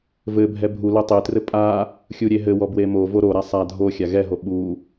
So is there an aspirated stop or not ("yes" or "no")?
no